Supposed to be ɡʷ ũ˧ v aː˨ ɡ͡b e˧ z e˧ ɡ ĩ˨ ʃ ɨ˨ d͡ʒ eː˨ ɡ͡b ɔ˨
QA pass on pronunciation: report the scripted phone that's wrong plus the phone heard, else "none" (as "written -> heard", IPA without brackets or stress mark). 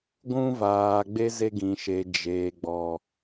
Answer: ɨ˨ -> e˨